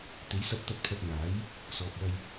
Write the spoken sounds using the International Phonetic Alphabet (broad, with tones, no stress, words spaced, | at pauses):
t̪e˨˥jsɐ˧p̚ t̪ɐ˧t̚pʰɐ˧t̚ŋaː˨˥j | sɔː˨p̚wɐ˧j